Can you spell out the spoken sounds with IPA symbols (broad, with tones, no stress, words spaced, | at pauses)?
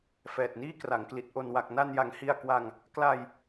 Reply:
fɛː˨˩t̚niː˥˩kra˩˦ŋkli˨˩t̚ ʔo˨˩nwa˨˩k̚na˧nja˩˦ŋ hi˧a̯ kwa˧ŋ | kla˧j